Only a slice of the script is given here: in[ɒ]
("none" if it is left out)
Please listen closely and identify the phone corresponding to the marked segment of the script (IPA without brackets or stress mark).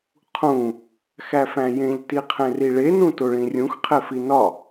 ɒ